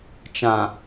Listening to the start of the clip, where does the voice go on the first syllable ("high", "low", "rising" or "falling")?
low